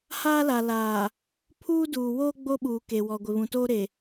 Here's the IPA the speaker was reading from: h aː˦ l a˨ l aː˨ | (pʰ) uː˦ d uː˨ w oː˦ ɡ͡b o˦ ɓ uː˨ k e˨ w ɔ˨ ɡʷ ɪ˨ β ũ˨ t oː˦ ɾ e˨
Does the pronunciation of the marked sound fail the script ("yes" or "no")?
no